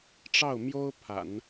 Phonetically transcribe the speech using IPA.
ʈ͡ʂ ɑ˥˩ ʊ̯ m j o˥ ʊ̯ pʰ a̰˨˩˦ n

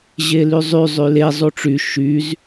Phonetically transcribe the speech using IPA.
ʑ e l y zˤ y zˤ y l e zˤ u ʈ͡ʂ y ʃ y z

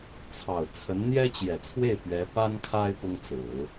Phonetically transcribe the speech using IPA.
t͡sʰ ɑ˨˩ ʊ̯ t͡sʰ ə˧˥ n n̪ j ɛ˥ t͡ɕ j ɛ˨˩ t͡sʰ w e˥˩ ɪ̯ p ɥ ɛ˧˥ p a˥ n kʰ a˥ ɪ̯ p ʊ˥ ŋ t͡s ɹ̩˨˩˦

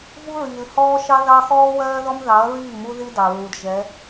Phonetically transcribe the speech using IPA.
v u˦ ɹ iː˨ l h ɔː˦ ʃ ɑ˦ ð ɑ˦ x ɔː˦ w ɜː˦ ð ɔ˦ m ð ɑ˨˦ ɐ̯ ɹ iː˦˨ m u˦ ð i˦ d ɑ˨ ɹ u˨ d ʒ ɛ˨˦

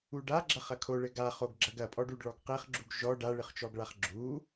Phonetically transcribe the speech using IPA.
u ɖ a ɡ͡ǁ ɐ χ ɐ kʰ o ɭ ɘ ɡ a χ o ɡ ɡ͡ǁ ɐ ɡ ɐ pʼ ɔ ɖ u ɖ ɭ ɔ ɡ q e χ ɡ͡ǁ u ɡ ʒ ɔ ɖ a ɭ ɨ χ t͡ʃ ɔ ɡ ɭ a χ ɡ͡ǁ u

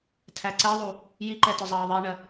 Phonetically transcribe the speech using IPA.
tʰ æ ǀ ɛ ðˤ u | j i ǃ ɛ t ʊ zˤ ɑː ðˤ i ɳ ɜ

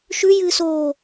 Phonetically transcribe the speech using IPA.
ʃ ʉ j ɨː s oː

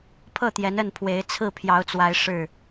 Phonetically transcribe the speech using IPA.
pʰ ɤ˥˨ t̪ j ɛ˨˦ n ə˥˨ n pʰ w e˨˦ ɪ̯ t͡sʰ ɹ̩˥˨ pʰ j ɑ˨˦ ʊ̯ t͡s w a˨˦ ɪ̯ ʂ ɻ̩˥˨

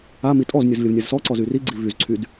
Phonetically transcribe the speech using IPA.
a m i tʼ ɔ z nʲ u z lʲ ə v nʲ a z s ɔ ǀ ɔ z y r i ɡ͡ǀ i v y z ǀʰ y d

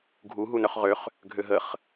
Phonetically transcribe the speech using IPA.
ɡʱ u ɦ u n œ χ ʁ ø χ | ɡʱ ø ɦ ə χ

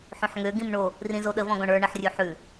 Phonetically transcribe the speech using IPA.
ħ õ ħ ŋ ø ɡ ĩ m ɳ o | r ĩ z o ɗ ə v ɔ̃ ɡ ɔ̃ ɳ ə˞ ɳ ə ħ rʲ ʉ ħ ʉ

